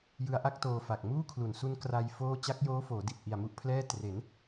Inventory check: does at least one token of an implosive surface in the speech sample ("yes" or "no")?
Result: no